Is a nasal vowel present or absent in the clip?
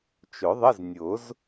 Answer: absent